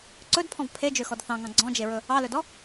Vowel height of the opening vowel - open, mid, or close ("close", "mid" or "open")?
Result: mid